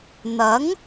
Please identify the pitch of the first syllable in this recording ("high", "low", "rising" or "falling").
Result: rising